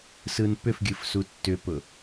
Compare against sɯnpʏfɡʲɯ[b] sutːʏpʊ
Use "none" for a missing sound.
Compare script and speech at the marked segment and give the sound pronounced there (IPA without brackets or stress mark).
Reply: f